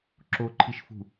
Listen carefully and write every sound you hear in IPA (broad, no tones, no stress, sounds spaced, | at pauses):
ǁ o ǃʰ i ʃ f ṳ